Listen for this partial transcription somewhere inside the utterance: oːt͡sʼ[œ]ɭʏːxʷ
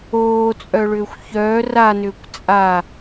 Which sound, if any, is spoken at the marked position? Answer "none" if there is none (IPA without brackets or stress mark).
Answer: œ